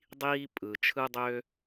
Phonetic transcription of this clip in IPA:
dˤ iː˥ pʼ ɯ˩ t͡ʃʰ ɯ˥ dˤ ø˥

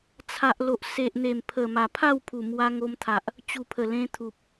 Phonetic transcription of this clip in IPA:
t͡sʰ a˨ ʔ l o˨ ʔ s e˨ ʔ n̪ e˨˩ m pʰ ə˨˩ m a˨˩ pʰ a˥˧ w pʰ u˨˩ m w a˧ ŋ o˧ m t̪ʰ a˨ ʔ | t͡ɕ u˨˩ pʰ ə˨˩ l ẽ˧ t̪ʰ u˨ p̚

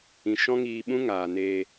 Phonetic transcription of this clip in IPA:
ĩ˨ ʃ ɔ̃˦ ŋ iː˧ ɓ ũ˦ ŋ aː˨ n eː˧

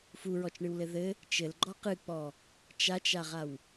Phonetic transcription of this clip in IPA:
f u ɹ ɔ t͡ʃ ɳ ɨ w l ɘ ð ɘ | t͡ʃ ɘ l ɡ͡ǃ ɔ q ɨ k͡p ɔ | t͡ʃ a t͡ʃ a ʁ a w

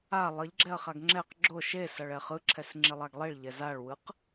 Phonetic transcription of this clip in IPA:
a lˠ ʌ ʎ ɡ͡ǁ ɛ ɐ̯ χ a ɡ ŋ͡ǁ ɛ q ɡ͡ǁ o ʃ e s ʌ ɭ ɛ χ ɯ ǁʰ ɛ s ŋ͡ǁ i lˠ a ɡ lˠ i ɭ ʎ ɛ z a ɭ w ɯ q

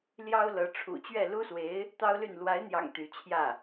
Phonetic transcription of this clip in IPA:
l j ɑ˥ ʊ̯ l ɤ˧˥ ʈ͡ʂʰ ṵ˨˩ t͡ɕ ɥ ɛ˥˩ l u˥ s w e˧˥ ɪ̯ | t̪ ɑ˥ ʊ̯ l y˥˩ n l w a˧˥ ɪ̯ n̪ j ɑ̰˨˩ ŋ t̪ y˧˥ t͡ɕʰ j ä˥˩

